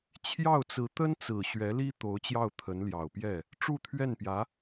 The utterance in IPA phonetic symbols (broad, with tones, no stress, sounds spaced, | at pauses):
t͡ɕʰ j ɑ˥˩ ʊ̯ t͡s ɹ̩˧˥ t̪ ə˥ n t͡s ɹ̩˨˩ ɕ ɥ ɛ˧˥ l i˥ t̪ o˧˥ ʊ̯ t͡ɕ j ɑ˥˩ ʊ̯ t̪ʰ ə˧˥ n l j ɑ˨˩ ʊ̯ p j ɛ˥˩ | ʈ͡ʂ u˥˧ t̪ʰ ɥ ɛ˥˩ n p j ä˧˥